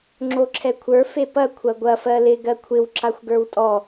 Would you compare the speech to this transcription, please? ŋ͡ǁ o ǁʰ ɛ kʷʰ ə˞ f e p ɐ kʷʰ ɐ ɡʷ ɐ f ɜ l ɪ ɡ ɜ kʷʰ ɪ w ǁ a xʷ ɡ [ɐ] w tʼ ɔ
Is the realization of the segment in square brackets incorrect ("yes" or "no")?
yes